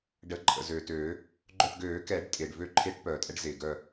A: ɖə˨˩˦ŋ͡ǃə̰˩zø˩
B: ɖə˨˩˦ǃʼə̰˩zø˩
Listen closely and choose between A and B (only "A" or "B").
B